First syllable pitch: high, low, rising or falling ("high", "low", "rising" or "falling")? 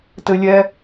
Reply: high